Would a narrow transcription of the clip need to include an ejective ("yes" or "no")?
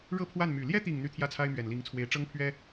no